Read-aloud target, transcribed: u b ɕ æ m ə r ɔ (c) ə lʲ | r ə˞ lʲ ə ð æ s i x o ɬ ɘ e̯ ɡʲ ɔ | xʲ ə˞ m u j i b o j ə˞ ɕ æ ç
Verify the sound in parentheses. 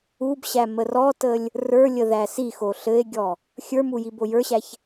incorrect: t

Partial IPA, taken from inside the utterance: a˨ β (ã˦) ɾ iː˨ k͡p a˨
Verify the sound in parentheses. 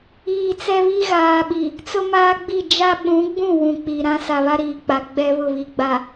incorrect: a˦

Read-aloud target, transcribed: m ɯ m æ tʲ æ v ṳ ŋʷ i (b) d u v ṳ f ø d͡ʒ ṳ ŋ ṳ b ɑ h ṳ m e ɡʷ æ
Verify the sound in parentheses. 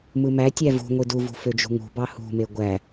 incorrect: none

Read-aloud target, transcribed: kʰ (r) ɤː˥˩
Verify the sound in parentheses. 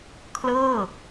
incorrect: l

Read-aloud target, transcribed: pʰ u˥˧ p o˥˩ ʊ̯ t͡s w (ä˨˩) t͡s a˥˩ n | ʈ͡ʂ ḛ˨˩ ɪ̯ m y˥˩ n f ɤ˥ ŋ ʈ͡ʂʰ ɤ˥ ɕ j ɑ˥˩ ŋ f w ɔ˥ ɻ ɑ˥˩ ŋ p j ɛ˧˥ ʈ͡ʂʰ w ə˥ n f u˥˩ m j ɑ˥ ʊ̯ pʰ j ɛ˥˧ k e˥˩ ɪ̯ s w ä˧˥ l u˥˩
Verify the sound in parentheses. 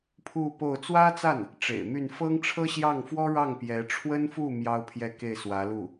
incorrect: ä˥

